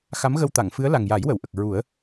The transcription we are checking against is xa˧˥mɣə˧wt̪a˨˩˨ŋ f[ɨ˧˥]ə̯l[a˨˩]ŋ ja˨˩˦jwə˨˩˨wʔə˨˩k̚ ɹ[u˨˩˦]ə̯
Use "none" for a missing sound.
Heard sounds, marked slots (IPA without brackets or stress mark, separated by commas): ɨ˧˥, a˨˩, u˨˩˦